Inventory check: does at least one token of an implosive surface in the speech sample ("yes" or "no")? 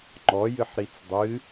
no